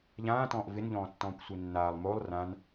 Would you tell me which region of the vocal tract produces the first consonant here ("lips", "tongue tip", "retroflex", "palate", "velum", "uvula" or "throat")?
palate